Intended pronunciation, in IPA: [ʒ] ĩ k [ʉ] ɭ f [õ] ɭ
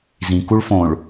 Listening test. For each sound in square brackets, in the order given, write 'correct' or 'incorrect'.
incorrect: z, incorrect: u, correct

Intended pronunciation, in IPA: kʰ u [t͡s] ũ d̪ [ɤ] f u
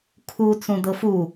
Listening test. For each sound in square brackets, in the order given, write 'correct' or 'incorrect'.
correct, correct

